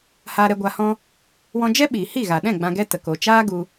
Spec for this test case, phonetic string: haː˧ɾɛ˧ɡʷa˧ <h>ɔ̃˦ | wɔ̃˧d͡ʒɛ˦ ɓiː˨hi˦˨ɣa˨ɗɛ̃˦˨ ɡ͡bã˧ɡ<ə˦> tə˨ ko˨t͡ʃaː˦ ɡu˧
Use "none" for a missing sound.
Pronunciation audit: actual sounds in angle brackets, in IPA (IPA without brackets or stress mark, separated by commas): h, ɛ˦